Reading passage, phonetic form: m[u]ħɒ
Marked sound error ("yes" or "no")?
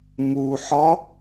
no